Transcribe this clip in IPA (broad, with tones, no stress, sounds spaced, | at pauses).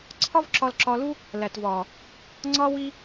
ǀʰ ɒ˦ v ǁ ɒ˧ l ǁ ɒ˧ l u˦ | l æ˨ t v ɒː˨ | ŋ͡ǀ ɒː˦ w i˦